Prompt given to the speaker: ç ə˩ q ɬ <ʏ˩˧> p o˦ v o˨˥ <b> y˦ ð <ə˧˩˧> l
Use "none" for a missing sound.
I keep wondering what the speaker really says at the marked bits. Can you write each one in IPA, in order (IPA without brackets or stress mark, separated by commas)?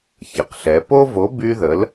ɛ˩˧, b, ə˨˥